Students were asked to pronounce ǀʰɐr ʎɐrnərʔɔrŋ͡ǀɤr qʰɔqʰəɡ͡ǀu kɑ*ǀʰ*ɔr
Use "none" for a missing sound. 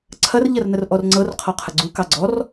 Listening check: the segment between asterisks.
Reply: ɡ͡ǀ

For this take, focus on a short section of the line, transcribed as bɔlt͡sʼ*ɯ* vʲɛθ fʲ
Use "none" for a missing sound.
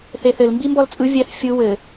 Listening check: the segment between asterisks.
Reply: ɯ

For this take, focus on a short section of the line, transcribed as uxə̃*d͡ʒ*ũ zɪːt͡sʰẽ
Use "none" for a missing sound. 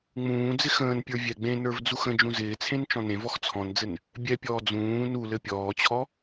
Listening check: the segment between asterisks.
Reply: d͡ʒ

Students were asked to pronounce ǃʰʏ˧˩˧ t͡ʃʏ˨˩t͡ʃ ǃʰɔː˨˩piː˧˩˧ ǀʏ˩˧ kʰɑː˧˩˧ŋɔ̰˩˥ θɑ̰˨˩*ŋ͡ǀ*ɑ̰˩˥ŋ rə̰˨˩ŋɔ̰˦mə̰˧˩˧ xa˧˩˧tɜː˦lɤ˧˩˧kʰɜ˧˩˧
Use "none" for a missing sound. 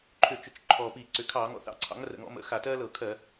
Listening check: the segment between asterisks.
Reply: ǀʰ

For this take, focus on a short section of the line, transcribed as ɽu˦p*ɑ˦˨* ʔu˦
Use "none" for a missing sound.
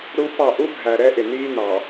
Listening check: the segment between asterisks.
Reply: ɑ˦˨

